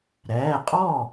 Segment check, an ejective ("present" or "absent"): present